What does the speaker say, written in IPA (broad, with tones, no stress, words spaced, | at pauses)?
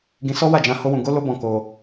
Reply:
ɡĩ˧sɔ˦wa˦˨d͡ʒã˧ ho˦wũ˧ ɡo˦lo˦bɔ̃˧ ko˧